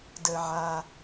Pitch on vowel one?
low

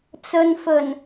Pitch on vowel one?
low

